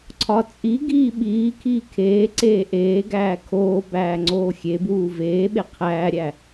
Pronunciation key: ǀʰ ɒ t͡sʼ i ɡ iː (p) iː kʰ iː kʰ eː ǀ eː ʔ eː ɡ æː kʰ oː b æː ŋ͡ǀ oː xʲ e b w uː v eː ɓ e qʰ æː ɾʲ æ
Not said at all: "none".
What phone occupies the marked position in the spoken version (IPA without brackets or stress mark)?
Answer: ɓ